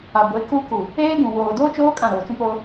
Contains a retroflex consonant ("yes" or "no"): no